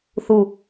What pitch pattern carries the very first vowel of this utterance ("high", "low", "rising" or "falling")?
low